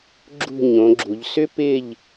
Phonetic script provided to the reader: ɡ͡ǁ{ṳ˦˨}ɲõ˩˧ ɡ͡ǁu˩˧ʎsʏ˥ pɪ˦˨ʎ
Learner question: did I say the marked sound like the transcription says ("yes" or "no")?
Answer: yes